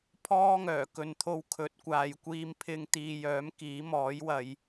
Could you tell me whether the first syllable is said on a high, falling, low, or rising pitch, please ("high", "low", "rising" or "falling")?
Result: high